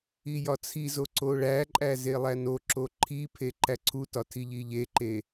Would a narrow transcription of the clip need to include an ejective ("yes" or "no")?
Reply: yes